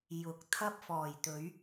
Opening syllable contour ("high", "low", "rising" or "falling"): rising